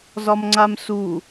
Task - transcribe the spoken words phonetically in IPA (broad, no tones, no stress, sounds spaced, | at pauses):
z ɒ m ŋ͡ǀ a m s u